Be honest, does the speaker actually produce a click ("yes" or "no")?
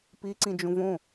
yes